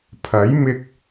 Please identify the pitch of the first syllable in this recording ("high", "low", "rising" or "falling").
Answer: rising